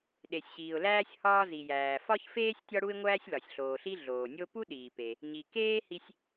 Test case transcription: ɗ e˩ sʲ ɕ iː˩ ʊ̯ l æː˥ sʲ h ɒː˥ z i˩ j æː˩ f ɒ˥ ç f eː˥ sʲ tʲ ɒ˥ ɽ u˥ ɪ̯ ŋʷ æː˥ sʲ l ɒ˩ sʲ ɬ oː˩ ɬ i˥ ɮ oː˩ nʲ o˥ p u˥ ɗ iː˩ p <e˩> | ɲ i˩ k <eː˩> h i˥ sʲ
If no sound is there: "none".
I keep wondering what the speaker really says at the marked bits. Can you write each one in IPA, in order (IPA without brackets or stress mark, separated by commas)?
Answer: e˩, eː˥